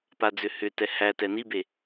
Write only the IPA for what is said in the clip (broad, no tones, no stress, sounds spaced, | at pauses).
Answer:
p a d͡z ʏ h ʏ t ɛ h æ t ɛ n i b e